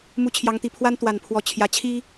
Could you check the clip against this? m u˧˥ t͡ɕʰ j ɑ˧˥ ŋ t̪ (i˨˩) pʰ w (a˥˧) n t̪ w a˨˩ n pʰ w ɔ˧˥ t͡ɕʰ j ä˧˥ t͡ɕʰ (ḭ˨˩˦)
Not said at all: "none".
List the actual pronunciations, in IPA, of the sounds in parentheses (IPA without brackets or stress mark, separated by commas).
i˨˩, a˥, i˥